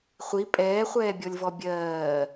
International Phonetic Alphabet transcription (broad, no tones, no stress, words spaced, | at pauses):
χʷi pʼɛːχʷɛːbʲɔlʲvɔ bʲɜː